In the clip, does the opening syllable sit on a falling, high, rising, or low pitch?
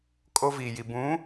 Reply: high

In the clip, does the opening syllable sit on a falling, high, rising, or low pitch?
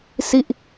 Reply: falling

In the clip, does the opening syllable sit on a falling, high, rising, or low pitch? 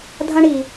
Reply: high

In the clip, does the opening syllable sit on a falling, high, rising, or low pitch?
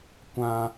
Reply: high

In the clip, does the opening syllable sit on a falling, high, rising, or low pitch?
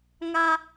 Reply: high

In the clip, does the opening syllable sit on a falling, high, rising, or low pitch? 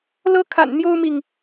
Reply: high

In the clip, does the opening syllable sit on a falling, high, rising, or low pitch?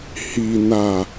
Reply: low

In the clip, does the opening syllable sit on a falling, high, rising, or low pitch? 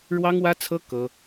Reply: high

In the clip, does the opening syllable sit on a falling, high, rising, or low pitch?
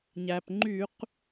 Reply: low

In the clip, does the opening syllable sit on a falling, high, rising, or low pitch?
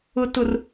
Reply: low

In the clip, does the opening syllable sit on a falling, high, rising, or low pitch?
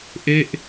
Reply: falling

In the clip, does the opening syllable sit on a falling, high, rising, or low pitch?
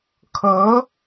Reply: rising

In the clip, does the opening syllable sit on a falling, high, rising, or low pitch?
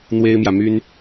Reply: high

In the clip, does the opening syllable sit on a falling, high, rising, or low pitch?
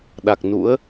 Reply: low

